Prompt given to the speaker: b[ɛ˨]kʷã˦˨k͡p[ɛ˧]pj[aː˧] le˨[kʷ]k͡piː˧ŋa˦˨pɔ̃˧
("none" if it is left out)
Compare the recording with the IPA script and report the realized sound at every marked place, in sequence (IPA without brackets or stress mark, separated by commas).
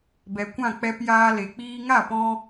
ɛ˨, ɛ˧, aː˧, none